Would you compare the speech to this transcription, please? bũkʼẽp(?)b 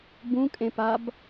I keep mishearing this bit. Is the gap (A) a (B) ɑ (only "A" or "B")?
A